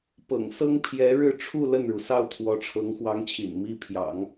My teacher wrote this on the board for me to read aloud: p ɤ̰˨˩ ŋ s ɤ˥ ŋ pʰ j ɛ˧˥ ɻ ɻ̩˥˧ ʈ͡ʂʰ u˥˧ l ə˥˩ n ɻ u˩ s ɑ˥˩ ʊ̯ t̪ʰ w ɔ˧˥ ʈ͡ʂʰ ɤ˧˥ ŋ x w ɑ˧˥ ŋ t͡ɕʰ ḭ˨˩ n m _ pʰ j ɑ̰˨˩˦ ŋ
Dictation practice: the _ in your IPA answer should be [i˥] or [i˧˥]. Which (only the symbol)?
i˥